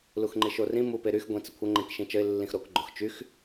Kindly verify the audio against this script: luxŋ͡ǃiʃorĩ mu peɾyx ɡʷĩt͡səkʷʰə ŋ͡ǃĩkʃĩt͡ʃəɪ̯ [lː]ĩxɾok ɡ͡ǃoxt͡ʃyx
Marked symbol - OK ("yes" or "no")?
yes